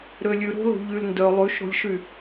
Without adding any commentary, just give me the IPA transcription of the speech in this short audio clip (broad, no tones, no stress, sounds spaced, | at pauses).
ɾ ø lʲ ʉ ɾ o̤ l o̤ ʎ y l n d œ lˠ ʉ ʃ ɾ o̤ lʲ ʃ y